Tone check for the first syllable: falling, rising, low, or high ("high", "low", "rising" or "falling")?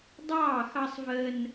falling